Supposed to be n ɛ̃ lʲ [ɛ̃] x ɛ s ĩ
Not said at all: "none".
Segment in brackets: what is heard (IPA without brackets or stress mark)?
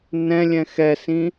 ɛ̃